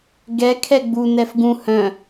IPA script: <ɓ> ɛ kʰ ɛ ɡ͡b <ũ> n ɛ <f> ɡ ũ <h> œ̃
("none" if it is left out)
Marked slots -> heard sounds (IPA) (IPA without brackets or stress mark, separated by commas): ɡ, u, f, h